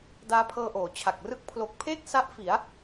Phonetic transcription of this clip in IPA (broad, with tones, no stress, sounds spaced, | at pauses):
d aː˦˥ pʰ ɤː˧ ʔ oː˩˦ t͡ɕʰ a˨˩ k̚ r ɯ˦˥ k̚ pʰ l o˨˩ k̚ pʰ e˥˩ k̚ s a˦˥ ʔ f i˩˦ a̯